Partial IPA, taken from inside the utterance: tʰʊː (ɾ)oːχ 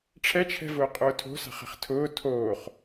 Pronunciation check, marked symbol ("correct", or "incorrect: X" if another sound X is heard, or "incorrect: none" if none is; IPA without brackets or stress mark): incorrect: tʰ